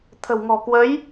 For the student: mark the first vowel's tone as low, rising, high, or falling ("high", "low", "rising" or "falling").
low